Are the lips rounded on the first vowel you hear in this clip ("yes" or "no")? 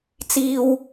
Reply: no